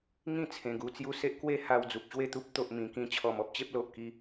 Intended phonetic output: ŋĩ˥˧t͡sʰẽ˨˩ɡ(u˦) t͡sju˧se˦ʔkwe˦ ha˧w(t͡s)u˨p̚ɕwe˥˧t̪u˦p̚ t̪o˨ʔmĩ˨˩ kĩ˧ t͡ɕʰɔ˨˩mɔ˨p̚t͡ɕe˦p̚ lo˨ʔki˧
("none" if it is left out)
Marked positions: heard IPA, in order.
u˧, d͡z

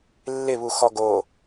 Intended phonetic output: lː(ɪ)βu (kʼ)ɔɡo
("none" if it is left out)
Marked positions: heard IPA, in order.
ɪ, x

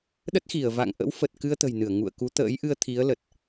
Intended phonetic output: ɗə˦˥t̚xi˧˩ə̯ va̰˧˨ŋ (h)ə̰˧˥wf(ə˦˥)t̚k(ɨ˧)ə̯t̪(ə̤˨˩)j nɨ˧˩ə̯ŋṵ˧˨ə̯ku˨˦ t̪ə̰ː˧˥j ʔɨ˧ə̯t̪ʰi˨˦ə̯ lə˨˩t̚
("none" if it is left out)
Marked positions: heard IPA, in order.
ʔ, ə˨˩, ɨ˧, ə̤˨˩

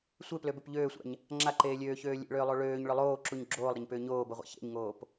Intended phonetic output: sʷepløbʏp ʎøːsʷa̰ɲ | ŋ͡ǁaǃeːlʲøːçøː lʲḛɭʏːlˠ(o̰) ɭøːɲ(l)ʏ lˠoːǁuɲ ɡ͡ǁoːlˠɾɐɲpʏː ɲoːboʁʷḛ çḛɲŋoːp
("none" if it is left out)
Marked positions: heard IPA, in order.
o, ɭ

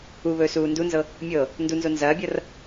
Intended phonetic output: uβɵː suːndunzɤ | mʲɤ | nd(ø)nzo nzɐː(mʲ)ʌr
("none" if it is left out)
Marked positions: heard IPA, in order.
u, bʲ

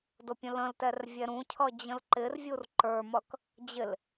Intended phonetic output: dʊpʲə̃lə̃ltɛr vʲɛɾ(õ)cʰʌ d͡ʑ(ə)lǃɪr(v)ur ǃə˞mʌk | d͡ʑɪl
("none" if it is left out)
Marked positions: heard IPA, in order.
ũ, ə̃, vʲ

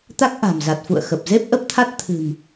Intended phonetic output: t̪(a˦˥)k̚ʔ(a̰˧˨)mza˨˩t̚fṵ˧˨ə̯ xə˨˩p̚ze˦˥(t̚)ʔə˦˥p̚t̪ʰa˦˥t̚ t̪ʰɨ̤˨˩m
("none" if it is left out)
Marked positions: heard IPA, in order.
a˦˥, a̤˨˩, p̚

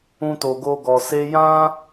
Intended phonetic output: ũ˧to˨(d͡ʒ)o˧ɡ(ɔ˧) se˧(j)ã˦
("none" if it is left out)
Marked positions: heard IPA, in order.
ɡ, ɔ˨, j

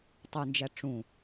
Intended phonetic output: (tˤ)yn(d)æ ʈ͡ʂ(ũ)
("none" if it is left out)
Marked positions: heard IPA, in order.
tˤ, d͡ʒ, ũ

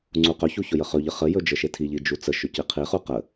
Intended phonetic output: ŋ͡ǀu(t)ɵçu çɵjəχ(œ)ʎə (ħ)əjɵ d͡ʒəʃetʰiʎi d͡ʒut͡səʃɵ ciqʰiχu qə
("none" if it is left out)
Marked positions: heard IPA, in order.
q, ɵ, χ

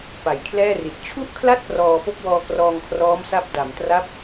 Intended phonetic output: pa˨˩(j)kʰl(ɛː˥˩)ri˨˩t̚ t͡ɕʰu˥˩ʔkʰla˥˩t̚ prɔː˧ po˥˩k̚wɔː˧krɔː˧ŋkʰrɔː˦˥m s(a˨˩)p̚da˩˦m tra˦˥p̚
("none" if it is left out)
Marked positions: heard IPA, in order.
j, ɛː˥˩, a˥˩

